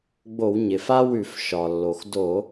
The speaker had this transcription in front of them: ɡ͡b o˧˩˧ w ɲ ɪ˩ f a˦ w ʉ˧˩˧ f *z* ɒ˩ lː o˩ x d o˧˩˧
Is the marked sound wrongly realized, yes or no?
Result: yes